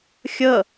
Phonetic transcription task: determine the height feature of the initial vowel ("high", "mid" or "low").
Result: mid